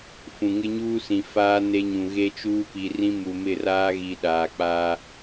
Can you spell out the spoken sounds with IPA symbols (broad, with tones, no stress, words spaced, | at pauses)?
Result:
fũ˨ŋɪ˦ɲuː˦ sĩ˨faː˦ ne˦ɲũ˨ ɣe˦t͡ʃuː˦pi˨rĩ˦ mu˨mɪ˦˨raː˦ɣi˨ ɗaː˨k͡pa˦